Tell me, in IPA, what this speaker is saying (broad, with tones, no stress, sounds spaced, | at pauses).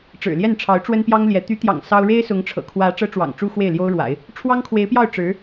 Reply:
ʈ͡ʂ ɻ̩˨˩ l j ɛ˥˩ n ʈ͡ʂʰ ɑ˧˥ ʊ̯ ʈ͡ʂ w ə˥ n p j ɑ˥ ŋ l j ɛ˧˥ t̪ y˧˥ t̪ j ɑ̰˨˩ ŋ s ɑ˥ ʊ̯ ɻ e˥ ɪ̯ s ʊ˧˥ ŋ ʈ͡ʂʰ ɤ̰˨˩ kʰ w ä˧˥ ʈ͡ʂ ɤ˥ ʈ͡ʂ w ɑ̰˨˩ ŋ ʈ͡ʂ u˥ x w e˥˩ ɪ̯ l j o˥ ʊ̯ ɻ w a̰˨˩˦ ɪ̯ | ʈ͡ʂʰ w ɑ˥ ŋ kʰ w e˧˥ ɪ̯ p j ɑ˥˩ ʊ̯ ʈ͡ʂ ɻ̩˧˥